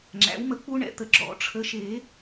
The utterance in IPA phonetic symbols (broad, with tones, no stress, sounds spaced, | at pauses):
ŋ͡ǁ æ̰˩˥ w m ə˨˩˦ k͡p u˦˥ ɳ ɛ̰˩˥ t̪ ə˨˩˦ ɡ͡ǁ ɔ̰˨˩˦ ʈ͡ʂʰ ə˨ ʃ e˨˩˦